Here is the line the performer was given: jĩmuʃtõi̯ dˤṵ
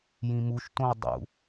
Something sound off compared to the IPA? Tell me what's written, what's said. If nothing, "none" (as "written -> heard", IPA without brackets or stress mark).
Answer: none